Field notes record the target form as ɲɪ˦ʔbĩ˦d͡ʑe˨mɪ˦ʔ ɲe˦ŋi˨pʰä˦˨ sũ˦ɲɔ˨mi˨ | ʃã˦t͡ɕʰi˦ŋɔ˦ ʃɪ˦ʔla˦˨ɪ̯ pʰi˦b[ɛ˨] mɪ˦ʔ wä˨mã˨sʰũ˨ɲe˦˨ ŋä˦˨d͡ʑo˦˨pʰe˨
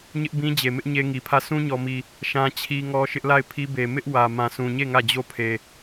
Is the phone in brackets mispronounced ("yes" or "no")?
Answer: yes